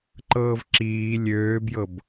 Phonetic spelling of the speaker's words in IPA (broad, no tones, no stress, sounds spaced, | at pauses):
ǃ ɤː v ǁ iː lʲ øː b j ɤ b